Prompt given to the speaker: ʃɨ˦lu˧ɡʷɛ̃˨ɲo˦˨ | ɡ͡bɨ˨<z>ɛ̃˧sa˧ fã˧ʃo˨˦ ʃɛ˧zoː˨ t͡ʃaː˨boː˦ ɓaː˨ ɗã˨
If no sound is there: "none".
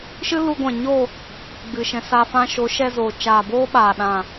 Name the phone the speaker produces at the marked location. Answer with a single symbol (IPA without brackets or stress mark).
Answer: ʃ